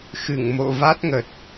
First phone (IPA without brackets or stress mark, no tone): x